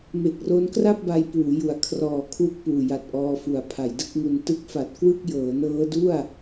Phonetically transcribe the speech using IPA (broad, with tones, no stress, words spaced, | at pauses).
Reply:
me˨˩k̚ro˦˥nkra˥˩p̚ ba˧jpuː˩˦ ju˩˦a̯kʰrɔː˨˩ kʰwu˥˩k̚puː˨˩ja˨˩t̚ʔɔː˧ fu˩˦a̯pʰa˩˦jdɯ˥˩k̚ŋu˧n tɯ˦˥k̚fa˨˩t̚kwɯ˥˩k̚ jɤː˩˦nɤː˦˥du˥˩a̯